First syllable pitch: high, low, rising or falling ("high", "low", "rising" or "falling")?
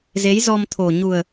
rising